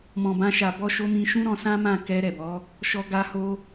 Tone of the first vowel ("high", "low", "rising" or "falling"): low